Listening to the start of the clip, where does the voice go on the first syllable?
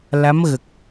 rising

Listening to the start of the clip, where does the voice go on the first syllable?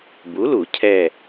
rising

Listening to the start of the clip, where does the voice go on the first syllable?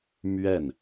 falling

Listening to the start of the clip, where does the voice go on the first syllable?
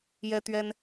high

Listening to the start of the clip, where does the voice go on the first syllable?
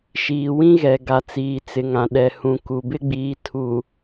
low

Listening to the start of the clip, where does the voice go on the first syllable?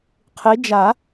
rising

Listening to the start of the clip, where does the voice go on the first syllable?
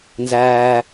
low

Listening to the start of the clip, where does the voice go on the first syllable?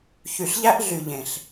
low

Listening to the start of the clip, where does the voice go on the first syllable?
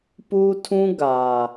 high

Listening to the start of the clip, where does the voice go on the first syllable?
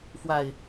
low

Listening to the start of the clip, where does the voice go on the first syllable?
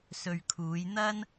low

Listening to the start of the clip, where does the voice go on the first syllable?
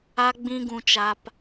high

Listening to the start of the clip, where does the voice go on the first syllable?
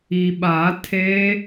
low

